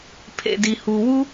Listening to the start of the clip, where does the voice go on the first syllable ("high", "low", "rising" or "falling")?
low